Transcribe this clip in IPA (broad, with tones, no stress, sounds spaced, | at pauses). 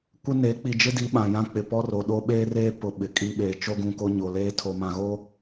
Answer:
kʷ ɪ˦ n e˨˦ k͡p i˨ d͡ʒ ɪ˦ d i˨˦ ɓ ã˨ j ã˦ k͡p ɪ˨ p ɔ˦ r o˨ ɗ o˦ ɓ eː˦ r eː˦ p ʊ˨ ɓ ɪ˨ kʼ i˦ ɓ eː˨ t͡ʃ o˦ ɡ ũ˨ k o˦ ɲ o˨ l eː˦ tʰ o˨ m ã˨ ɣ o˦